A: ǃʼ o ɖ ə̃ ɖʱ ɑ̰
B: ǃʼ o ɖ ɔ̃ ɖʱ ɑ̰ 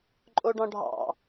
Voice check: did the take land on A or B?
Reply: B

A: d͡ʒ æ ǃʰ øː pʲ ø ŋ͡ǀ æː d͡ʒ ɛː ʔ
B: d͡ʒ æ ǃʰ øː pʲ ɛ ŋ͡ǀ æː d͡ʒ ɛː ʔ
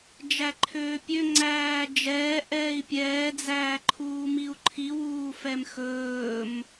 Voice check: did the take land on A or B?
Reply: A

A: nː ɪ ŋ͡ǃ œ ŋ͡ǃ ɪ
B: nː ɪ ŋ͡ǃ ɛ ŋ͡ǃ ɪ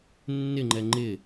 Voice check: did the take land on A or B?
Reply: B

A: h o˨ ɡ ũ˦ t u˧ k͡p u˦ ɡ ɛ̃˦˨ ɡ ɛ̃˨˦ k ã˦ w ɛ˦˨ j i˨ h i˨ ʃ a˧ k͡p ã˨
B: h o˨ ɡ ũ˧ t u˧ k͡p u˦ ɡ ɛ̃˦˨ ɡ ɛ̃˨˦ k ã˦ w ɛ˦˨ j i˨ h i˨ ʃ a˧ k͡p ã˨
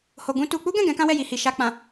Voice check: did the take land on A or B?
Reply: B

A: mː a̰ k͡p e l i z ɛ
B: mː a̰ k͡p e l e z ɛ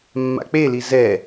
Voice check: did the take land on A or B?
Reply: A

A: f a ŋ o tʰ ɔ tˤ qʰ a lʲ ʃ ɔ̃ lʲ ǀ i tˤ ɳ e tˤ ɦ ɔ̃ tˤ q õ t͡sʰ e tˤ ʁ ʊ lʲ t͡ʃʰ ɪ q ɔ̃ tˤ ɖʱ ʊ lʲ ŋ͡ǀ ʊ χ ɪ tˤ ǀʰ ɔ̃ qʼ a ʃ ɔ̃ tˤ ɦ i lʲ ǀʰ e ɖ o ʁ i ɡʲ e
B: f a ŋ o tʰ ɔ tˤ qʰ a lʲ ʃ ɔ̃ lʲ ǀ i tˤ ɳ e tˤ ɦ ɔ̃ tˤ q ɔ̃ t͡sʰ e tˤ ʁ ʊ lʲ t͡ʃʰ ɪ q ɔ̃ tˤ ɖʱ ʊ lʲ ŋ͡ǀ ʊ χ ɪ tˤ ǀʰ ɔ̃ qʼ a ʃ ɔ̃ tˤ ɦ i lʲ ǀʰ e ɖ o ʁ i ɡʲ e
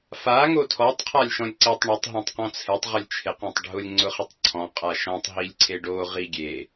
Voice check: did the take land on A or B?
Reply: B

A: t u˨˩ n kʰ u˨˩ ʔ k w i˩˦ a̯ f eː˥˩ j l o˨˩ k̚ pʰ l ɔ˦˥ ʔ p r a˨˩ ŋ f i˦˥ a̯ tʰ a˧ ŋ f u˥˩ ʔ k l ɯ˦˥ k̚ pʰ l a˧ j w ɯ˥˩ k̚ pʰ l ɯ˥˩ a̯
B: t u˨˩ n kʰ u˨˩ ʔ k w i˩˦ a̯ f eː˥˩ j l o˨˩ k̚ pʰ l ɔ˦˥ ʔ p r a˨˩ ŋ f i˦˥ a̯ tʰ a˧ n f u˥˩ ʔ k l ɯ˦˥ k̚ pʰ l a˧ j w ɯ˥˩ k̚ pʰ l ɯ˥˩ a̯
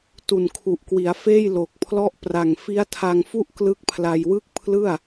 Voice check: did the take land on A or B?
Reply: A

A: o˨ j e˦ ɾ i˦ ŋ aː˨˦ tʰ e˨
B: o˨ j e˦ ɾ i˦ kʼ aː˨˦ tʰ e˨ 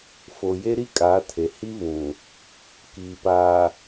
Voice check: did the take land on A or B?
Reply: B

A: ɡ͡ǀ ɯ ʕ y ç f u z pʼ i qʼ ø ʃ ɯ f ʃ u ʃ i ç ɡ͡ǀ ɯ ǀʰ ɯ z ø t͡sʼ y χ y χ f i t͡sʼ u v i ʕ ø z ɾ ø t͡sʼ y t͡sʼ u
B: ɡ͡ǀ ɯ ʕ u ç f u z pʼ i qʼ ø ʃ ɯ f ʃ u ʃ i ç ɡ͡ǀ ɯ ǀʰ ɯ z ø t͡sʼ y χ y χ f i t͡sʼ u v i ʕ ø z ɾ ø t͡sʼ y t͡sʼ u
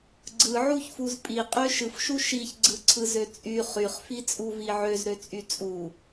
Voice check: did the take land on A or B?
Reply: B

